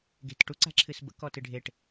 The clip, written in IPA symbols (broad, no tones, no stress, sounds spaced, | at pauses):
ɡ e̤ t ʈ u ǀ a̤ ǁʰ ɨ s b ə̰ k ɔ t ɨ ɖʱ e ʈ